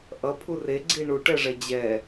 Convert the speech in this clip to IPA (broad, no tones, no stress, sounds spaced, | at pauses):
ʔ ʌ pʰ u r e ɡ͡ǀ i ɳ u ʈ ɛ ʐ ɛ d͡ʑ ɛ